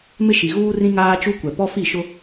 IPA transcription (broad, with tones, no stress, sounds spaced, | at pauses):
m ɪ˦ ʃ i˨ ɣ uː˦ r ĩ˦ ŋ aː˦ t͡ʃ u˦ kʷ ɛ˨ p ɔ˦ f i˦˨ ʃ ʊ˦